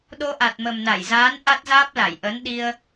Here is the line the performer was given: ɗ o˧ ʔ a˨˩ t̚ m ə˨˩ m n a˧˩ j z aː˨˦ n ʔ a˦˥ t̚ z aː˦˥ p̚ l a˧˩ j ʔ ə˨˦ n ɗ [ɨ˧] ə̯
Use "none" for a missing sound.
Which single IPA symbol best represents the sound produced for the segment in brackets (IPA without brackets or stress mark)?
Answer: i˧